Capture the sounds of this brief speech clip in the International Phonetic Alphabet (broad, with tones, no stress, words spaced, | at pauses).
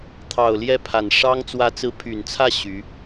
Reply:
t̪ʰɑ˨˩ʊ̯ljɛ˥˩pʰa˨˩nʂɑ˥ŋ t͡swä˧˥t͡sɹ̩˧˥pʰy˨˩nt͡sʰä˥˩ ɕy˧˥